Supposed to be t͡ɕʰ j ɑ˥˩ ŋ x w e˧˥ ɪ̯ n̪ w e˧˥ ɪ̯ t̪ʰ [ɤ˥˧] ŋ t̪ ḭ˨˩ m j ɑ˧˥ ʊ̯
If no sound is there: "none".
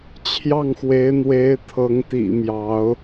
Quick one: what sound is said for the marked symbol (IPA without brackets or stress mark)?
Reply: ɤ˧˥